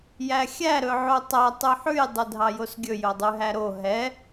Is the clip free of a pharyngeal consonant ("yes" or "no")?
no